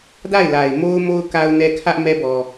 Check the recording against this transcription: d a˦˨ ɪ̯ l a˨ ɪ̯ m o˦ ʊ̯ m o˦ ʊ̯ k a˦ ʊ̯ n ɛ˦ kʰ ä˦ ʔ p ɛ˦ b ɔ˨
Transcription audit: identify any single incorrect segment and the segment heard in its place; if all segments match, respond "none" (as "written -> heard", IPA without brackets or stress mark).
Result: p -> m